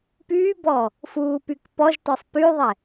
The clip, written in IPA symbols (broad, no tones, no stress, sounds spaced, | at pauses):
p yː b ɔː | f uː p y k p ɔ ʒ t ɔ sˤ p y ðˤ ɛ